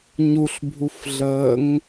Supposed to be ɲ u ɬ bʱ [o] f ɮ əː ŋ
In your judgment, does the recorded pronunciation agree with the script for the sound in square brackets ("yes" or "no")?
no